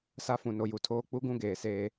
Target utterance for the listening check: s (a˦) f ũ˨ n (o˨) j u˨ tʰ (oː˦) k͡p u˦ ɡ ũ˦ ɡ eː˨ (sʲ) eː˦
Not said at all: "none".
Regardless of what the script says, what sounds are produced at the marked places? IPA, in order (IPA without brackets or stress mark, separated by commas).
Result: a˦, o˨, oː˦, s